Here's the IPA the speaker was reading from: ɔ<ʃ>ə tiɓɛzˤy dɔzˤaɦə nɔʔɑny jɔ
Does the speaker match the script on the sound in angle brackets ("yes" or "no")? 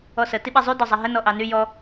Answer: no